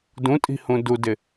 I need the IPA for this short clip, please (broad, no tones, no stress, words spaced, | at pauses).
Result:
dũtʼi̤hũ dudɪ